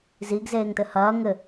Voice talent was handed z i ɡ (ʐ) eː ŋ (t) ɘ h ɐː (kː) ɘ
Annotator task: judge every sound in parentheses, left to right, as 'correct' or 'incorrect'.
incorrect, correct, incorrect

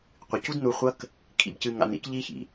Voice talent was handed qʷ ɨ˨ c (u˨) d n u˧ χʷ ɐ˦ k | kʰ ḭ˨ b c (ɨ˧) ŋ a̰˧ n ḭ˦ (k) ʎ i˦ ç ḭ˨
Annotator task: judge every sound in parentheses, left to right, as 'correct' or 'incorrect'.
incorrect, correct, correct

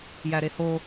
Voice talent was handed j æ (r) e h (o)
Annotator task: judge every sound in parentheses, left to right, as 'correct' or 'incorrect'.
incorrect, correct

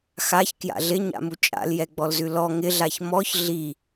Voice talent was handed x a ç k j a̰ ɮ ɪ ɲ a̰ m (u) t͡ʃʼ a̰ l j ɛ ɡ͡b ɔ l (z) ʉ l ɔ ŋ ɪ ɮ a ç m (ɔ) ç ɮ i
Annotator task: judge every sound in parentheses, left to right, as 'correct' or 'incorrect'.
correct, correct, correct

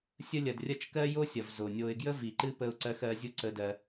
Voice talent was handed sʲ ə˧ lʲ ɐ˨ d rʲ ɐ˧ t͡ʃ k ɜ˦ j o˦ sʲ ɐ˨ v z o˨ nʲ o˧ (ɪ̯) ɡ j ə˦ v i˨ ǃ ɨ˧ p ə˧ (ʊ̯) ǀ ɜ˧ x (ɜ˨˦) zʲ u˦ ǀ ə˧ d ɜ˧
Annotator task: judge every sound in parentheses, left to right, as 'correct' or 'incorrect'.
correct, correct, correct

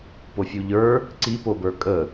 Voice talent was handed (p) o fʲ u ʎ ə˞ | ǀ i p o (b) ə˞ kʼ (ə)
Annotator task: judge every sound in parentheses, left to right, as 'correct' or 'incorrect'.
correct, correct, correct

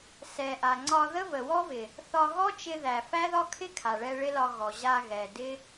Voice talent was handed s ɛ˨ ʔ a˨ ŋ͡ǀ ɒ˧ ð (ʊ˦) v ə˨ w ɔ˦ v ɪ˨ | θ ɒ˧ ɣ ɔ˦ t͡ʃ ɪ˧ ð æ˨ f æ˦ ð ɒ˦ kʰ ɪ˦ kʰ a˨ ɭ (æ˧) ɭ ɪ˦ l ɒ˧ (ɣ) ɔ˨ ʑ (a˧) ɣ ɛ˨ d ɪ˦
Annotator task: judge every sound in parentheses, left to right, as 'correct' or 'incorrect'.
incorrect, incorrect, correct, correct

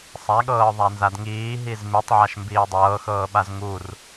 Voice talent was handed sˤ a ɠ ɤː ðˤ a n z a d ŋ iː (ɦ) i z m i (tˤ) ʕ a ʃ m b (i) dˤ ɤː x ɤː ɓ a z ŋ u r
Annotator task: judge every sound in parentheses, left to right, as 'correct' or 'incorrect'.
correct, correct, incorrect

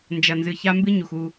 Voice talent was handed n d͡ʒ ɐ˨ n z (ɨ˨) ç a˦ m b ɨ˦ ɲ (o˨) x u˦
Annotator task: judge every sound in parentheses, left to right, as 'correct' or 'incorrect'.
correct, incorrect

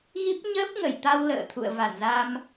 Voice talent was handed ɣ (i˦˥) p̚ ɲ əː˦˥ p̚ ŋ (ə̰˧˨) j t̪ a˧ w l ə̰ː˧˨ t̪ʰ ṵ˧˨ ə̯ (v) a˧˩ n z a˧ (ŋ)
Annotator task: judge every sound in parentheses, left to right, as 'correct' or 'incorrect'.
correct, incorrect, correct, incorrect

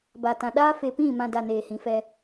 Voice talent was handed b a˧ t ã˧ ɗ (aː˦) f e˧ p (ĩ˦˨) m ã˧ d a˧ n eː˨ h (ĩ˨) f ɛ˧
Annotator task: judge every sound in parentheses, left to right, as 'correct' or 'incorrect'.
correct, correct, correct

